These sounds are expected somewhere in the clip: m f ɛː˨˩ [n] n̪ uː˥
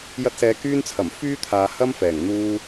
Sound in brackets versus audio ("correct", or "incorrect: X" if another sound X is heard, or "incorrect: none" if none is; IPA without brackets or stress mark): incorrect: ŋ